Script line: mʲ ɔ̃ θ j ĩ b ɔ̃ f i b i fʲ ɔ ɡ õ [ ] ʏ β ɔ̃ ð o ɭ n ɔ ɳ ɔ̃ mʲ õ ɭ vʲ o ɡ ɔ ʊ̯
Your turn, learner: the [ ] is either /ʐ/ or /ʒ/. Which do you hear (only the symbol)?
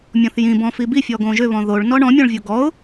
ʒ